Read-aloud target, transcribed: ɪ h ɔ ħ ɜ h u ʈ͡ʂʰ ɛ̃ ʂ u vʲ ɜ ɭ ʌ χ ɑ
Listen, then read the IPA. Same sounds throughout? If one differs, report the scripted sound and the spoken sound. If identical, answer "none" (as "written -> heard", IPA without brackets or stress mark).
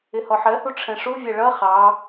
none